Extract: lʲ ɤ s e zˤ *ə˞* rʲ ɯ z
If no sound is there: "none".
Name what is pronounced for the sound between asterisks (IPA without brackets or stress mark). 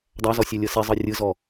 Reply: ɤ